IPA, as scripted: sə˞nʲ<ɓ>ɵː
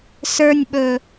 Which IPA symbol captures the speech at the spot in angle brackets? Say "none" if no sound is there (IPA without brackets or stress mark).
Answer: ɓ